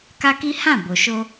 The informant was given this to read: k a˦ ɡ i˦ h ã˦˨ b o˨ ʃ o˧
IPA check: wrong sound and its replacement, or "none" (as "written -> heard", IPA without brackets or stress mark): ɡ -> k